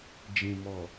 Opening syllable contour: low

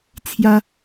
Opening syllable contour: high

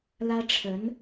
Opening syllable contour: high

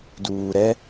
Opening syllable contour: low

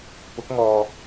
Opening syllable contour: rising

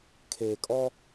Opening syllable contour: low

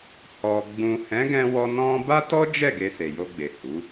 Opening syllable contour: low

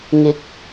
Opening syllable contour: rising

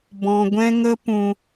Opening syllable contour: low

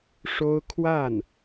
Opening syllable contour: high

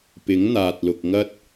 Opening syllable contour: rising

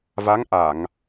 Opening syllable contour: rising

